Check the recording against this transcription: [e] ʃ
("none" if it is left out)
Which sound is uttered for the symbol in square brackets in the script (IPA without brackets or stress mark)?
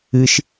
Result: ɨ